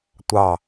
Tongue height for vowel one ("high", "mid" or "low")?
low